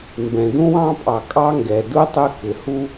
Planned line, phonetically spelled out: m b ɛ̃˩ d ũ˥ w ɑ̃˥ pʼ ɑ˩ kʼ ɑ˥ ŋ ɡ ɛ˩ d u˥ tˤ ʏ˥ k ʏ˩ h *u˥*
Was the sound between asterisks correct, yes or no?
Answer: yes